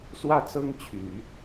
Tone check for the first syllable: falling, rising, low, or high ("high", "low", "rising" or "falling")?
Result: falling